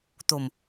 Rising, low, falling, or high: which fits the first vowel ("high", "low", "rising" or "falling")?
low